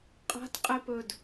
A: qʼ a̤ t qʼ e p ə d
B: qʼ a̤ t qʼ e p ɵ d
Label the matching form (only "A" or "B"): B